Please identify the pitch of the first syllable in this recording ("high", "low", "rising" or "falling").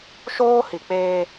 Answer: high